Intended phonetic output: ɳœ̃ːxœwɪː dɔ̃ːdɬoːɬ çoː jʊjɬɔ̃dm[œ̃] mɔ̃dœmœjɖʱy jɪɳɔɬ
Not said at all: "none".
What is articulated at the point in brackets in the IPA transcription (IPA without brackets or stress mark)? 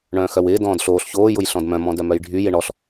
œ̃